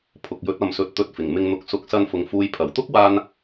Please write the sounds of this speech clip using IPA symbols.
pʰ ʊ˨ k̚ j ɵ˨˥ t̚ ɐ˨ m s ɵ˨˥ t̚ t̪ ɵ˨˥ t̚ f ɪ˨˩ ŋ m ɪ˧ ŋ n̪ ʊ˨˥ k̚ s ʊ˨˥ k̚ s ɐ˧ n f ʊ˨ ŋ f uː˨ j pʰ ɐ˨˩ w t̪ ʊ˥ k̚ w aː˧ n

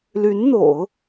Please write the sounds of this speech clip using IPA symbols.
l y˧˥ n n̪ o̰˨˩˦ ʊ̯

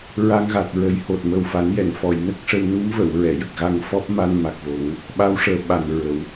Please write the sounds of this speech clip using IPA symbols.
ɹ a˧ ŋ ɣ a˨˩ t̚ ɹ ə˨˩˦ j h o˨˩ t̚ m ə˨˩ w f a˨˩˦ n j ɛ˨˩˨ n f ɔ˨˩˨ j n ə˦˥ k̚ ʂ ə˧ w n u˧˥ m v ə˨˩˨ w ɹ ɛ˨˩˨ j ə˨˩ k̚ ɣ a˧ ŋ f ɔ˦˥ p̚ m a˧ n m a˨˩ k̚ v o˨˩˦ ŋ | ɓ a˧˥ w ʂ əː˨˩ ɓ a˨˩ n ɹ ə˨˩˨ w

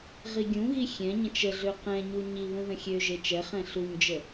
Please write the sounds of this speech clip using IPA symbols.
ʁ i ɡʲ ũ ɣ i xʲ ɛ̃ ɲ ə̃ t͡ʃ ə ɮ ø q ɛ̃ ɲ u ɲ i β ũ ð ə̃ xʲ ø ʒ e t͡ʃ ɛ χ ɛ̃ ɬ u ɲ d͡ʒ ə

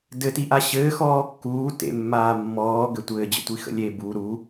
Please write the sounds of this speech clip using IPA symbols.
d ɘ t i ʔ a ɕ ɘː x ɔː kː uː t ḛ mː aː mː ɔː ɡ ɘ tʷ ɘː d͡ʑ ə̰ tʷ i x ə̰ lʲ e b u ɾ u

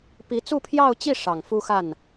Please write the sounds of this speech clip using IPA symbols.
p i˧˥ t͡s u˥˧ pʰ j ɑ˥˧ ʊ̯ t͡ɕ i˥˩ ʂ ɑ˨˩ ŋ f u˥ x a˥˩ n

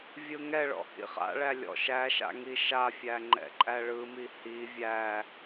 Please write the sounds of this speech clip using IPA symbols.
vʲ ɯ ŋ ɛ ɭ ɔ̰ h ḭ χ a̰ ɭ æ lʲ ɔ̰ ʃ æ ʃ a̰ ŋ i ʃ a fʲ æ ŋ͡ǃ ɛ̰ ǃʼ æ ɭ ɯ m i h i vʲ æ

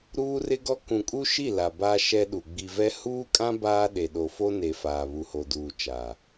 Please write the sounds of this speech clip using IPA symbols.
ɾ uː˦ r ɪ˦ ɡ ɔ˦ k ũ˨ kʼ u˦ ʃ i˦˨ l a˨ b a˦ ʃ ɛ˦ ɗ u˨ ɡ͡b i˨ v ɛ˦ h uː˦ kʼ ã˦ b aː˦ ɗ e˨ ɗ o˨ f o˦ n e˨ f aː˨ β u˨ h o˨ d uː˨ t͡ʃ a˨

